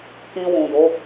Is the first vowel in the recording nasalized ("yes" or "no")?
yes